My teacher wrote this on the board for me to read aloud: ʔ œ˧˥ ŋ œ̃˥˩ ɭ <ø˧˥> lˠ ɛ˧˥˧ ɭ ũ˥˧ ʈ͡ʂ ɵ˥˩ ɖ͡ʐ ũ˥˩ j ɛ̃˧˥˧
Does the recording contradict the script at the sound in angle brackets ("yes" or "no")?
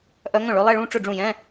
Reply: no